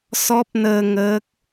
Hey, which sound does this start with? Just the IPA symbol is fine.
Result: s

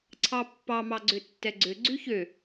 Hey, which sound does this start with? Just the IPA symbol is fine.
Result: ǀʰ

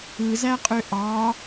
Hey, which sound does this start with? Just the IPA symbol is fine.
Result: ɯ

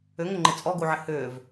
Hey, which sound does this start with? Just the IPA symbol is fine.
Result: ʏ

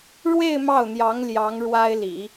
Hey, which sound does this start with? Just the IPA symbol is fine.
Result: ɻ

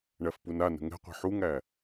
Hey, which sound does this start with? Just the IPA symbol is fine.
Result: ɳ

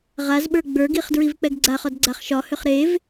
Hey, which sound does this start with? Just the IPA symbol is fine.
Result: ʁ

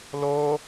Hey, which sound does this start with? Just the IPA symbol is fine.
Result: l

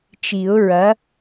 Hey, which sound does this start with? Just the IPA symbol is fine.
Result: t͡ʃ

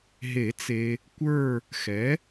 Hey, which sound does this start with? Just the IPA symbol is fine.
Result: ɦ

